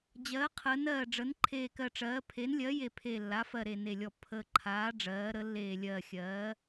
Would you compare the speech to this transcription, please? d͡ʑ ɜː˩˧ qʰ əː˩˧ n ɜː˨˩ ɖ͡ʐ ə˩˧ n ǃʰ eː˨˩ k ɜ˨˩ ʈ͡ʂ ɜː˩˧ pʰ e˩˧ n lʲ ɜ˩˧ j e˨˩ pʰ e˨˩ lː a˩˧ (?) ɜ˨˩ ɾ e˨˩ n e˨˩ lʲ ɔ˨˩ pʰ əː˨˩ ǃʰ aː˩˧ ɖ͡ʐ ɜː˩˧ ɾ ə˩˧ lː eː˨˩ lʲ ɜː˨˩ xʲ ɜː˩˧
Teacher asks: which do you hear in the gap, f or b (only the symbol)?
f